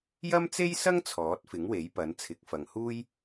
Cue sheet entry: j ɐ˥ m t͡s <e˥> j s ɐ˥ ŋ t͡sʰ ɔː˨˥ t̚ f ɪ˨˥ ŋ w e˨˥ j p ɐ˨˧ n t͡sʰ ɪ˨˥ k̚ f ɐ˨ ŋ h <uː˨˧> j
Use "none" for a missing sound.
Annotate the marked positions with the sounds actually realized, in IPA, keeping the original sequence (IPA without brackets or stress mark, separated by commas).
e˥, uː˥